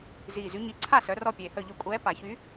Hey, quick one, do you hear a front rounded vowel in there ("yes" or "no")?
yes